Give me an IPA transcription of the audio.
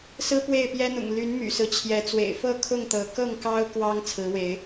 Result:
sɹ̩˦pwe˥˨ɪ̯pjɛ˦n̪ʊ̰˨˩ŋ ly˨˦n my̰˨˩sɹ̩˦t͡ɕʰjɛ˨˦ t͡swḛ˨˩ɪ̯fɤ˥˨ kʰʊ˥˨ŋt̪ɤ˨˦ kɤ˥˨ŋkɑ˦ʊ̯ kwɑ˦ŋ t͡sʰɹ̩˨˦we˨˦ɪ̯

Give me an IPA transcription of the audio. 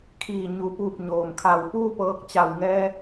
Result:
kʰiː˧˩ɲu˩˧puː˧˩p̚ ɲoː˩mkʰa˧˩w puː˥˨pɤː˧k̚ t͡ɕa˧˩w ŋɛː˧

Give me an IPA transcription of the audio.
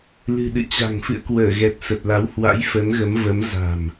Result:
lɨ̤˨˩ɗɨ̰˧˨t͡ɕa̤˨˩ŋ fɨ̰˧˨ə̯kwəː˧˩ɣɛ˨˩t̚ sə˨˩t̚la˨˦whwa̰˧˥j fə˨˦nɣə˨˦mvə˨˦m za̤˨˩m

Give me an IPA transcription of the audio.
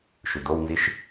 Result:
ʃʉd̪ownziʃ

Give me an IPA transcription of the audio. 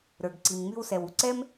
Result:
ɾə˞˨ɡǀi˨mŋ͡my˦wsɛ˨w u˩ǀɛ˥m

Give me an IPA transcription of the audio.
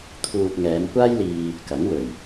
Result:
t̪ʰuː˨t̚ ŋɛː˨˧mkʷaː˥jliː˧ | kɐ˨˥ŋ wɵ˨˩ɥ

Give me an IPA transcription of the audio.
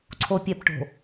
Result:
ǀʰopʲɛpʈo̤

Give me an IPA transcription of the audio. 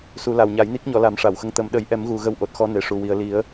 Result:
su˨˩˦la˨˩wɲa˨˩˦j ni˦˥k̚ɲɔ˨˩˦ la˨˩˦m ʂa˨˩˨wxə˧˥ŋ t̪ə˨˩˦m ɗə˨˩˦jʔɛ˨˩˦mɣu˨˩ ɣə˧wʔo˨˩t̚ xɔ˧˥ne˨˩ʂu˨˩ wi˨˩ə̯ li˨˩˦ə̯

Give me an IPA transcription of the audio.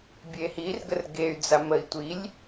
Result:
bʲehirɡər ɡey̯ d͡zaməi̯tʷilʲ

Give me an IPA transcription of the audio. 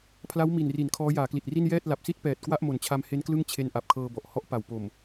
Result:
pʰla˦˥wmi˨˩nri˩˦n kʰɔː˦˥jaː˩˦kli˨˩t̚ri˥˩n jɛː˥˩t̚ la˨˩p̚si˥˩t̚pɛː˨˩t̚ kwa˥˩ʔmo˨˩nt͡ɕʰa˧mhe˦˥n klɯ˥˩ŋt͡ɕʰe˦˥n ʔa˨˩p̚kʰɤː˧bɔ˨˩ʔ hɔ˥˩ʔpa˨˩w po˨˩m

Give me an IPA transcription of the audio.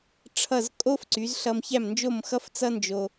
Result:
ʈ͡ʂʰʌ˥˩z kʼo˥fǀy˩˥z ɬʌ˧mçæ˥˩mnd͡ʒo˥˩m xʌ˥ft͡sʌ˥ nd͡ʒo˧

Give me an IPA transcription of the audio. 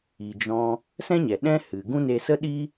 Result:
i˨d͡ʒɔ̃˧ | sɛ̃˦ɲɛ˨ɗɛ̃˦ hɨ˨ɡũ˦ne˧ sə˦ɗi˦

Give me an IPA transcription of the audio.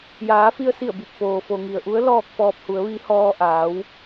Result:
jaː˩˧fi˧ə̯si˧˩ə̯bi˧˩p̚ foː˩fo˩ŋi˩ə̯ʔu˧˥ə̯ lɔː˥˨k̚fɔː˧p̚hu˩˧ə̯ ʋi˧˥hɔː˧ʔaː˩˧w

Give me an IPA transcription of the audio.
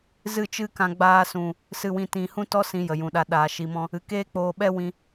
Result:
zɨ˦˨t͡ʃɨ˦kã˧ ɡ͡baː˧sũ˨ | sɨ˨wĩ˨tĩ˨ hũ˦tɔ˦ sĩ˧jə˨jũ˨ɗa˧ ɗaː˨ ʃi˨mɔ̃˧ | ɨ˨keː˦k͡poː˧ ɓɛ˦ wĩ˦

